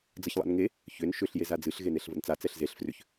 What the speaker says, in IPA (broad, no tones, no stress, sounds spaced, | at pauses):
d͡z ə ç lˠ a̰ n ŋ e | ç ʏ n ʃ ʏ ɬ j e z a d͡z ɨ ɬ ɣ e n e ɬ v ə̰ n t͡s a t͡s ɛ ɬ z e ɬ f r ʏ ç